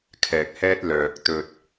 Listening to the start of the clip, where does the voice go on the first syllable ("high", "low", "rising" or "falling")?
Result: low